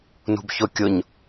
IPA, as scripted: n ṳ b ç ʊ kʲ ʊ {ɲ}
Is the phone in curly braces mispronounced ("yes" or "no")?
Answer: no